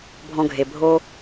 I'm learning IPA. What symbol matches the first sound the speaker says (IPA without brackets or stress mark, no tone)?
bʱ